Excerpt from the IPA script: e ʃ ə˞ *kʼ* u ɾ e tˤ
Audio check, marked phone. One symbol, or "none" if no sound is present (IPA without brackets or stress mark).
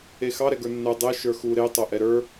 x